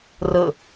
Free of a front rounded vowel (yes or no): yes